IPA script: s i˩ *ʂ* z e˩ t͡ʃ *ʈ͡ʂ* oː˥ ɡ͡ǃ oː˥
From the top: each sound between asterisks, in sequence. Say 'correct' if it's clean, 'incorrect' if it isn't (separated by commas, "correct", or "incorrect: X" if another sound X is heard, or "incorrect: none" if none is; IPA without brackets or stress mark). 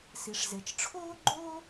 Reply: correct, incorrect: ʈ͡ʂʰ